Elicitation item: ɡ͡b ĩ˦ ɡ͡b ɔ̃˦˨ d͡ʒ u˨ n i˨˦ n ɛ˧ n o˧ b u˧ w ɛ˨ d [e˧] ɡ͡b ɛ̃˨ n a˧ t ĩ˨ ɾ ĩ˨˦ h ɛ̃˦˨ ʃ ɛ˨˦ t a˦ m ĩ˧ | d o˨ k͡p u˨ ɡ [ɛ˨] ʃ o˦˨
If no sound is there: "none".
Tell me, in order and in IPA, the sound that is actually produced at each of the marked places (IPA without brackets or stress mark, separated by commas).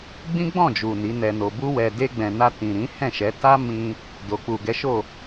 e˧, ɛ˨˦